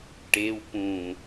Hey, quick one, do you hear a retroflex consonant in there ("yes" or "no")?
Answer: yes